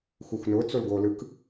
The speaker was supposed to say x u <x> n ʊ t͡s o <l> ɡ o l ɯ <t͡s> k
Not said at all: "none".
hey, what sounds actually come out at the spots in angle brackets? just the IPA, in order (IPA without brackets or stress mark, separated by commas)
x, l, none